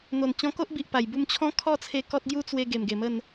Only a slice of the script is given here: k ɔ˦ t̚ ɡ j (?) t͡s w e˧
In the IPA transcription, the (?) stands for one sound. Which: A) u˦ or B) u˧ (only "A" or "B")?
A